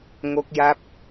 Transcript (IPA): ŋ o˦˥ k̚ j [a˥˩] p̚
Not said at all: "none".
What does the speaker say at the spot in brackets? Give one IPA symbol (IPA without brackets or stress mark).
a˦˥